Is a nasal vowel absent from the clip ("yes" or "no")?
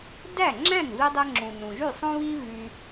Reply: no